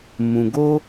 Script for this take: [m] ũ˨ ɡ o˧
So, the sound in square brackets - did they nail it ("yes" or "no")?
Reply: yes